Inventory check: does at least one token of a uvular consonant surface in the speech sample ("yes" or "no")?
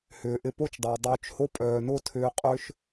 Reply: yes